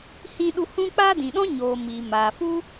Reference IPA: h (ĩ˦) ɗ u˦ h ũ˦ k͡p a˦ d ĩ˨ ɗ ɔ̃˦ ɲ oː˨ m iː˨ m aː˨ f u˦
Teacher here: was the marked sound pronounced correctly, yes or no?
yes